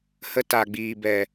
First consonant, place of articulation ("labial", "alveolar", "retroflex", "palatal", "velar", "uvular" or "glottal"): glottal